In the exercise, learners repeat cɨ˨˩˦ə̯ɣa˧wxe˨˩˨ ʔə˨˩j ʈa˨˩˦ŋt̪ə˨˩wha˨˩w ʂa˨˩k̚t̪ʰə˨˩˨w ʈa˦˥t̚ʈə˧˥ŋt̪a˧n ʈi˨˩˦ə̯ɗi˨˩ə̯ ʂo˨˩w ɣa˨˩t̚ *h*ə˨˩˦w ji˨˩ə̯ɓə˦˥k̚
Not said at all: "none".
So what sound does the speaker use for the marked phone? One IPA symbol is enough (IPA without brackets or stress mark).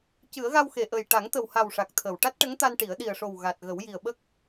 ɣ